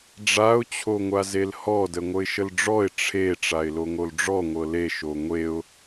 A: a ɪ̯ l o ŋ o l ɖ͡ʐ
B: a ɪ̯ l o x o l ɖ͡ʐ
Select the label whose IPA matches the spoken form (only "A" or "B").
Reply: A